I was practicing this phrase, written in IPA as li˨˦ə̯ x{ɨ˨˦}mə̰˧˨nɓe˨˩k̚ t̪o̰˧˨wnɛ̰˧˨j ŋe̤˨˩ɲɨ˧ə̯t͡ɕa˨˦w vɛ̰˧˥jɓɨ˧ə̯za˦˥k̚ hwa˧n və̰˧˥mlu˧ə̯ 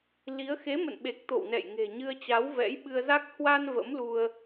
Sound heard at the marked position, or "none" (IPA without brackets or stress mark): e˨˦